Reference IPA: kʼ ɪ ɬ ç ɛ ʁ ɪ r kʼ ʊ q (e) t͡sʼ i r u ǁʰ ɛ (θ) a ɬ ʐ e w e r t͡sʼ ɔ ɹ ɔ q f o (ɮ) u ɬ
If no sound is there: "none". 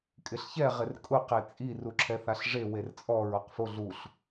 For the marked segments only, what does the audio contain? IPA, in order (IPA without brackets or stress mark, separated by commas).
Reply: e, θ, ɮ